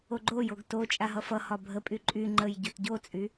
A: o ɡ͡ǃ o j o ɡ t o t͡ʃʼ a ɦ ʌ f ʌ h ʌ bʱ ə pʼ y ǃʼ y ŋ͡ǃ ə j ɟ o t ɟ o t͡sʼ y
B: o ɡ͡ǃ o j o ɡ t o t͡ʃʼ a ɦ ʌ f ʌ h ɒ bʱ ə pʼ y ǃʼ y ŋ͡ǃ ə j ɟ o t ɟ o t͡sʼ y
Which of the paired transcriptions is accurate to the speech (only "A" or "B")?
B